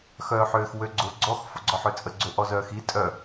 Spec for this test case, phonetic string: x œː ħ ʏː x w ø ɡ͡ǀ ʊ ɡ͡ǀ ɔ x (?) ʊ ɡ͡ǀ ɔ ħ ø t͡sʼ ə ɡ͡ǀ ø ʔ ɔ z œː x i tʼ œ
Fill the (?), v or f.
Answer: f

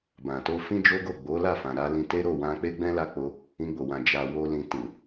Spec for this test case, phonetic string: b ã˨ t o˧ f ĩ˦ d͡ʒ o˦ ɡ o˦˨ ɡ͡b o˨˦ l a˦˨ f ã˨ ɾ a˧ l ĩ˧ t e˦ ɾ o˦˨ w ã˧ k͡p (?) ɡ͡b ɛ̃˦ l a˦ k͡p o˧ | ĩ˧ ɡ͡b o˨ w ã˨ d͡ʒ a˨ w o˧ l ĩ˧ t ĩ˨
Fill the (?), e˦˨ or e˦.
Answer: e˦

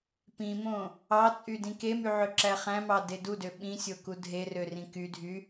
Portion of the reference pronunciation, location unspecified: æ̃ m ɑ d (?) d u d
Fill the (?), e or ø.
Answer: e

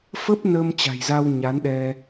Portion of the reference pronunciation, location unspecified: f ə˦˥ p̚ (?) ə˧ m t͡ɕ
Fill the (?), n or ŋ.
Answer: n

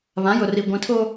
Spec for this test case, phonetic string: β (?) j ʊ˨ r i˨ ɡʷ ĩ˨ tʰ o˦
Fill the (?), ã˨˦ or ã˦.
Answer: ã˨˦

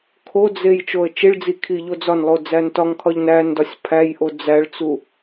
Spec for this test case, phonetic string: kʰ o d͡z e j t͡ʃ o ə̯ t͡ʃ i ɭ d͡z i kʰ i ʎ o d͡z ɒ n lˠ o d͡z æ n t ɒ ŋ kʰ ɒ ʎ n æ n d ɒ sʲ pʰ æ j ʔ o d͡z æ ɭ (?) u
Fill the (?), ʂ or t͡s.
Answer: t͡s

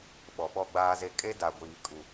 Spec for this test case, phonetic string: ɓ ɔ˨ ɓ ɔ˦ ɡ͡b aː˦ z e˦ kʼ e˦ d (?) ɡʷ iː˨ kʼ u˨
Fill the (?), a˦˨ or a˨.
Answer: a˨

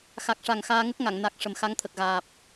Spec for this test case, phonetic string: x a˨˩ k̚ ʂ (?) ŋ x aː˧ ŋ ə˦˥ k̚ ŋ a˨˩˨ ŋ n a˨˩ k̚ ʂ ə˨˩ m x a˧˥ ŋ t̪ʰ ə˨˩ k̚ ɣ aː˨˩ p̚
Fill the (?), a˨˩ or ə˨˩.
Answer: a˨˩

